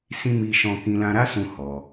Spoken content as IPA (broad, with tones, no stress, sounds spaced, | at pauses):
s ĩ˦ m i˦ ʃ ɔ̃˦ k ĩ˧ l ã˧ ɾ a˦ s ũ˧ h ɔ˧